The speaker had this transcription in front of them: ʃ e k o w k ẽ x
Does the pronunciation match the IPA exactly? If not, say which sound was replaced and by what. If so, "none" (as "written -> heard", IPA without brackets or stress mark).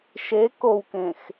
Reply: none